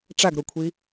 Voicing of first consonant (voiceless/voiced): voiceless